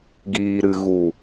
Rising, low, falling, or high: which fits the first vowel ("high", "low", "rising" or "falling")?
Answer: low